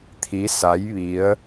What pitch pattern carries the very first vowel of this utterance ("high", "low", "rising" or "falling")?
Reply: rising